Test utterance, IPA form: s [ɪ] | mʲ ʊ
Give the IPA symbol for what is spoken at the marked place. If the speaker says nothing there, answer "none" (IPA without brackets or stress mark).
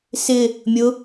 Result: ɪ